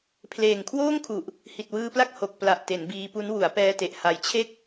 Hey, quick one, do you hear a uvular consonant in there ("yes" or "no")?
no